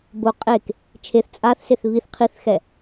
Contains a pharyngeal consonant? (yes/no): no